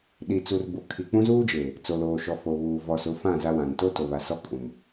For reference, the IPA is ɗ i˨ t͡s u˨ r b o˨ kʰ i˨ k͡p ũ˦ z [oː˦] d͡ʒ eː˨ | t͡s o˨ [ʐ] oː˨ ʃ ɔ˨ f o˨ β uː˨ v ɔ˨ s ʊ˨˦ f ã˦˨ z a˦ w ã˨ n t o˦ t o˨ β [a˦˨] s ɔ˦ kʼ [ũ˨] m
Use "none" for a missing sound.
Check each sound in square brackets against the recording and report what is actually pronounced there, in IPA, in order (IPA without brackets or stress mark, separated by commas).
uː˦, l, a˨, ũ˨